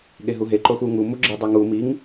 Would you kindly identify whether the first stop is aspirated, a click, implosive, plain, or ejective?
implosive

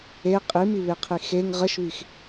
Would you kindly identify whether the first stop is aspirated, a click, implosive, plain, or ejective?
ejective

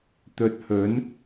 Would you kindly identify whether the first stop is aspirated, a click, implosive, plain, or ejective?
plain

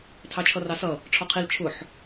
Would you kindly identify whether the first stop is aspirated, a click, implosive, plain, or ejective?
aspirated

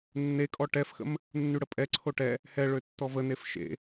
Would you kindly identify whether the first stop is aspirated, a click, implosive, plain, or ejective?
ejective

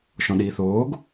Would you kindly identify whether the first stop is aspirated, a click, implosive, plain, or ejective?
implosive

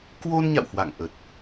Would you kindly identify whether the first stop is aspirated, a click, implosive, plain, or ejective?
plain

